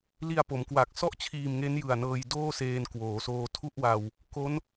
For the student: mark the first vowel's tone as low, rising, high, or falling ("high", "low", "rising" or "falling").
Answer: low